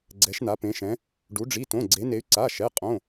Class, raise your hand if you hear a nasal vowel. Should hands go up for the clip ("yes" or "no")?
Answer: yes